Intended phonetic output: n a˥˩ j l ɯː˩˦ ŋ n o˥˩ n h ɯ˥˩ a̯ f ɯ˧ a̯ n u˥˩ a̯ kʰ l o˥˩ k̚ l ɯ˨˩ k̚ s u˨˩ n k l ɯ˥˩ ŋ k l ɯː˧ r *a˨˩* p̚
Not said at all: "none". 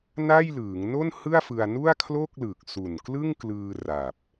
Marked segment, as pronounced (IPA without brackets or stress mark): a˨˩